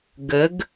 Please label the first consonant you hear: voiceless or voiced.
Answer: voiced